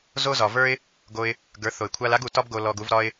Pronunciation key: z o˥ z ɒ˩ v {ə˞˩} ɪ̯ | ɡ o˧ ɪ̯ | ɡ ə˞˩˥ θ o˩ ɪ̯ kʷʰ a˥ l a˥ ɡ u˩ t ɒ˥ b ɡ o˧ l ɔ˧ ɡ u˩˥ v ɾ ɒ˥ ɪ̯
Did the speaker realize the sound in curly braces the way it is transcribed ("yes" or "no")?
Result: no